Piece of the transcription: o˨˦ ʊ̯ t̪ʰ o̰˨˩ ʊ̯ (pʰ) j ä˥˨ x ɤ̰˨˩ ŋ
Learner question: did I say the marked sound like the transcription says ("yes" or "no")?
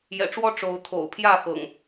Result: yes